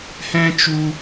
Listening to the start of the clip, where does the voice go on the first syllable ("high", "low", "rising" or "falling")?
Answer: high